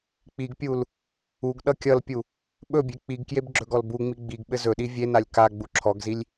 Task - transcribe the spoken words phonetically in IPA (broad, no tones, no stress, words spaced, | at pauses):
k͡piɡpʲul | uɡ ɗʌkʲʌlpʲu | ɓɵbʲe k͡piɡkjeb ɡ͡ǁɵɡɔlbuŋ͡mi ɡ͡biɡɓɘ zɵɗi vʲenalʲ ka ɡ͡buǁʰɔɡzilʲ